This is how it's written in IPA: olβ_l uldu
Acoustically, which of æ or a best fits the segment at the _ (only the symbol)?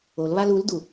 a